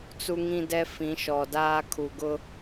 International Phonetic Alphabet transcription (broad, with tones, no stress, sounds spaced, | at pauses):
t͡s u˦ ŋ ĩ˦ d ɛ˦ f ĩ˨˦ ʃ ɔ˨ d aː˦ kʰ u˨ ɡ ʊ˦